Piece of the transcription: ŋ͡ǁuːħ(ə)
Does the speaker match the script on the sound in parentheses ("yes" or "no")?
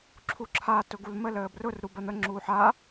no